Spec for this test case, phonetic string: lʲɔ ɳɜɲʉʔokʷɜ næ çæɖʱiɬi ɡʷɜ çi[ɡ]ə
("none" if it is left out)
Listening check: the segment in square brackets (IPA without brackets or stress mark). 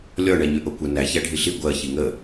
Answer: ŋ